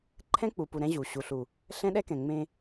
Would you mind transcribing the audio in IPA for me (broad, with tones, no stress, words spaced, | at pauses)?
ǃʰɛ̃˦k͡pu˨pu˨ ɾɛ̃˦ʑu˨ ɕu˨ɬu˨ | ɬɛ̃˦ɗɛ˦kɛ̃˨ ŋ͡mẽ˦